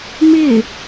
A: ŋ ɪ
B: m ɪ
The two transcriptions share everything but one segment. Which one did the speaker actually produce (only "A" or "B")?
B